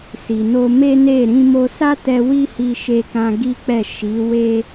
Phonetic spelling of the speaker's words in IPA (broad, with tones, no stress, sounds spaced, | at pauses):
s i˨ n o˧ m e˦ n e˦˨ ɾ ĩ˧ m o˧ s a˦ t ɛ˧ w i˦ h i˧ ʃ e˧ k ã˧ ɡ i˦ k͡p ɛ˦˨ ʃ i˨˦ w e˦